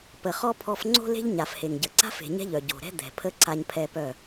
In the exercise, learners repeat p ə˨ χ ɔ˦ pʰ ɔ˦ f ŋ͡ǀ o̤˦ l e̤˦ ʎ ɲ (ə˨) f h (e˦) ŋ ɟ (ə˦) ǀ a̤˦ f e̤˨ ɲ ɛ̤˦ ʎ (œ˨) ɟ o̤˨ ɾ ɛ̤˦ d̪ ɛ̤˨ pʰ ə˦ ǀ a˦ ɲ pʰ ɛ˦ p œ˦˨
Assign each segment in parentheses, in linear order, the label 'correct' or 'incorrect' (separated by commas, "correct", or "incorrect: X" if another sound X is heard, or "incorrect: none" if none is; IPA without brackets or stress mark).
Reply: incorrect: a˨, incorrect: e˨, incorrect: ə˨, correct